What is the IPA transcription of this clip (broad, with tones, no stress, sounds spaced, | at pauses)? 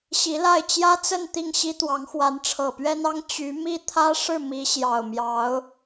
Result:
ɕ i˧˥ l a˥˩ ɪ̯ t͡ɕ j ä˥ t͡s ə˥˧ n t̪ i˥˩ ŋ ɕ i˥ t̪ w ɑ˧˥ ŋ x w a˧˥ n ʈ͡ʂʰ ɤ˨˩ p ɥ ɛ˥ n ɑ˥ ŋ t͡ɕ y˧˥ m i˥˩ t̪ʰ ä˥ ʂ ɻ̩˥˩ m i˧˥ ɕ j ɑ˨˩ ʊ̯ m j ɑ˧˥ ʊ̯